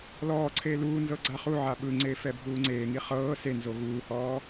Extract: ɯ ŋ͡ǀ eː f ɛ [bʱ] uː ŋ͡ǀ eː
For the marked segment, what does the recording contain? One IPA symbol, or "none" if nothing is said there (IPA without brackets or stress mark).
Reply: bʱ